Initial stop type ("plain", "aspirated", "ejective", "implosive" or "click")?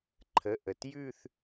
click